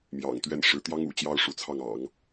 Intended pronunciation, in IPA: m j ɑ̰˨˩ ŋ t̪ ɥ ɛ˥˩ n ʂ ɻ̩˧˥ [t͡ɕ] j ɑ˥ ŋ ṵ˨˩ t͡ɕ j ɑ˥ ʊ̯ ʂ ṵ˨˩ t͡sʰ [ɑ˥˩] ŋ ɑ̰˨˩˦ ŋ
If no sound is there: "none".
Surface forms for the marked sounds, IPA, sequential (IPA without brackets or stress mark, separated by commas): t̪, ɑ˥˩